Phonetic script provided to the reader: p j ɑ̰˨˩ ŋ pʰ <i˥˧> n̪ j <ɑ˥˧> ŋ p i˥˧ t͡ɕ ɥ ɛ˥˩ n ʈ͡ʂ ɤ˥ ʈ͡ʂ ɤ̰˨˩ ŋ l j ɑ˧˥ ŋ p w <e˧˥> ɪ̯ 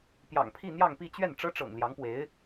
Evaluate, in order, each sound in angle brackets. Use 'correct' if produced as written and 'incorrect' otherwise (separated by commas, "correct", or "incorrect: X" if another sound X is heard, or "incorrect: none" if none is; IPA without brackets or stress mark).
correct, correct, correct